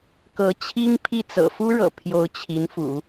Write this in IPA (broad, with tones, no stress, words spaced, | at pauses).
kɤ˧˥t͡ɕʰi˥ŋpʰi˥˩ t͡sɤ̰˨˩fu˥ɻɤ̰˨˩ pʰjo˧˥ʊ̯t͡ɕʰi˧˥nfṵ˨˩˦